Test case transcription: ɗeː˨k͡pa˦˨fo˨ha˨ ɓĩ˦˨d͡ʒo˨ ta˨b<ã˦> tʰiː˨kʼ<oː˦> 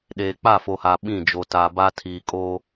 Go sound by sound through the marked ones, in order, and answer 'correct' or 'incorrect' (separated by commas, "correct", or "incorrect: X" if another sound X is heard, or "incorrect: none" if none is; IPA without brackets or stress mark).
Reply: incorrect: a˦, correct